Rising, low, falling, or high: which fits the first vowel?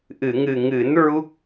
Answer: low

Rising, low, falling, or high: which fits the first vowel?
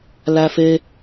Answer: high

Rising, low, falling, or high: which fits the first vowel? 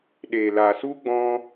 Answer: low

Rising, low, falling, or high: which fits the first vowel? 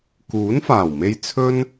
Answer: rising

